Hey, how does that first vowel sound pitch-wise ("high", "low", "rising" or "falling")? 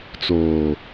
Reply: low